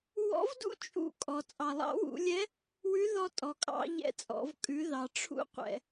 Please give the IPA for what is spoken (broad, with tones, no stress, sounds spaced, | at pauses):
w ɔ̰˧˥ v d ṵ˥ t͡ʃʼ ṵ˧ kʼ ɔ˩ t͡sʼ ɑ˩ lˠ ɑ̰˧˥ w ṵ˩˧ lʲ ɛ˧˥ | w ʉ˧˥ ð ɔ˧ tʼ ɔ˩ kʼ ɑ̰˧ ʎ ɛ̰˧˥ t͡sʼ ɔ̰˩˧ v kʼ ʉ˩˧ ð ɑ˩ ʈ͡ʂʰ ṵ˧˥ qʷ ɛ̰˩